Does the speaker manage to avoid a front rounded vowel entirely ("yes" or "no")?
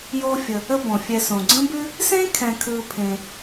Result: yes